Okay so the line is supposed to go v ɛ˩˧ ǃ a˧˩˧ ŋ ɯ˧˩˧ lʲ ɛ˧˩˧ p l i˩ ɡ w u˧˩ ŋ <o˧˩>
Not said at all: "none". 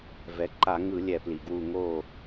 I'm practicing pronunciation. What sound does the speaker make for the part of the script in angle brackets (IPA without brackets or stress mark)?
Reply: o˧˩